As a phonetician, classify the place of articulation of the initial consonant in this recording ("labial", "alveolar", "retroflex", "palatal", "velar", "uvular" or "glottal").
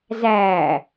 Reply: alveolar